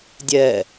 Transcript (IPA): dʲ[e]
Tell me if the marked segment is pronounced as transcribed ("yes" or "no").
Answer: no